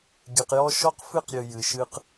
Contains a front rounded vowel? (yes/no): no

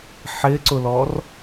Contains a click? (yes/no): yes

